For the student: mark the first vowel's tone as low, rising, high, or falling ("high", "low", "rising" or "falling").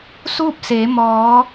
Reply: falling